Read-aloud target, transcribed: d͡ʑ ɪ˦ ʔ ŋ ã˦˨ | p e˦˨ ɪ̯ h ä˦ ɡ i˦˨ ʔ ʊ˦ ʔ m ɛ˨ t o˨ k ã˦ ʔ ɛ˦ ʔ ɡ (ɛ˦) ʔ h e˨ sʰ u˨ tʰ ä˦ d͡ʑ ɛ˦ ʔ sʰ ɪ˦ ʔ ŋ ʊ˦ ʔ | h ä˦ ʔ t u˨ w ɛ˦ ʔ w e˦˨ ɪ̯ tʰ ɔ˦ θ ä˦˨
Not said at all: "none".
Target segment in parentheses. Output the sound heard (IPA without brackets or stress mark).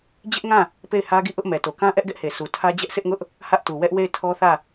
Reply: ɛ˦